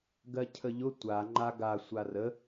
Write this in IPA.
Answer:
ɡ ɜ cʰ ə ʎ ʊ tʷ a ŋ͡ǃ a ɡ a sʷ a r ə

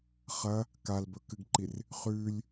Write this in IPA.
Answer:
χ ɐ | k a l b ɵ k ɨ ɡ ǃ i r | χ ʉ lʲ

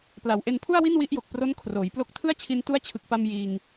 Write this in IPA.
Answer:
p l a˩˦ w ʔ e˧ n pʰ u˥˩ a̯ w i˥˩ n w i˦˥ ʔ j o˨˩ k̚ p r o˦˥ n kʰ r oː˩˦ j p l o˦˥ k̚ tʰ ɯ˥˩ a̯ t͡ɕʰ i˧ n t u˦˥ a̯ t͡ɕʰ ɯ˨˩ k̚ p a˧ m j iː˧ ŋ

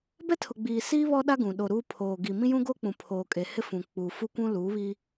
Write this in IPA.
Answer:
b ɛ˦ tʰ ʊ˨ ɡ͡b iː˨ s iː˦ β ɔ˦ ɗ a˦ ɡ ũ˨ ɗ o˨ ɾ uː˦ pʰ oː˨ ɡ i˨ m ĩ˦ j ũ˦ ɡ o˦ k͡p ũ˨ pʰ oː˨ kʼ e˨ h ɪ˦ f ũ˨ k͡p uː˨ f u˦ kʷ ũ˦ l uː˨˦ β i˦

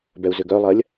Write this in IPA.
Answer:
b ɛ u̯ z ʏ ɡ œ lˠ ɐ lʲ

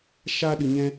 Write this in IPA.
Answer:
ʃ a˦ ɗ ɨ˧ ɲ ɛ̃˦

